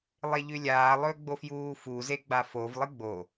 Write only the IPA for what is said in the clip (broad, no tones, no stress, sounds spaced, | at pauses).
lˠ e ʎ ʉ lʲ aː lˠ ɵː ɡ͡b o f j uː f u z e ɡ͡b a f o v lˠ ɨ ɡ͡b o